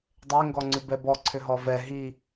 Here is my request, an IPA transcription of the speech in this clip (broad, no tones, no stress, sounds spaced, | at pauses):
dˤ e ŋ ɡ ɔ ŋ͡ǀ ʉ b ɛ b ɔ ǀʰ ʏ ɦ ɔ v ɛ ɦ i